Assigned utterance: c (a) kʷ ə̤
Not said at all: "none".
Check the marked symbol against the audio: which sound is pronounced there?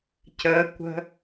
ə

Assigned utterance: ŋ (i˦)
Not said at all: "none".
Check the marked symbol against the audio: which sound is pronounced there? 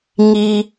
i˦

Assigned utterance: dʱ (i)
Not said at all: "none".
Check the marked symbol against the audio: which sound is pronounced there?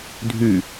y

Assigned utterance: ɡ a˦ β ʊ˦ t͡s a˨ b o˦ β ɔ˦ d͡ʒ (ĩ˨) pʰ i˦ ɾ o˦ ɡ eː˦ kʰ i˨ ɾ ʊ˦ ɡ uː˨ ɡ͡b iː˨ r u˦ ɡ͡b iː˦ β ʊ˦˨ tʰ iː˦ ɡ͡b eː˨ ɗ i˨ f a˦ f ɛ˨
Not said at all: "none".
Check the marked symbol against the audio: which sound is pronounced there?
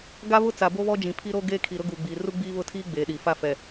ĩ˨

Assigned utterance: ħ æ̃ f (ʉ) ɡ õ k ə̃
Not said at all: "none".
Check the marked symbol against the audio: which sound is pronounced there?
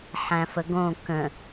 ə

